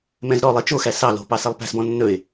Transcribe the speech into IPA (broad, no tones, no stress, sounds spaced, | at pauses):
m ɛ̃ z ɾ ɔ lˠ i t͡ʃ o x æ s ɑ l o̤ p ɑ s ɛ lˠ p æ̤ s b ɔ̃ nː ɵ ɪ̯